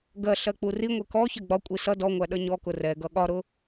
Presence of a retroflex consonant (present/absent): absent